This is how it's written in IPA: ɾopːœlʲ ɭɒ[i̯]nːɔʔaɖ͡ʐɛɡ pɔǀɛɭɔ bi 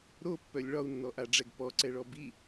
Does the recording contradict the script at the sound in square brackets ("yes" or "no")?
yes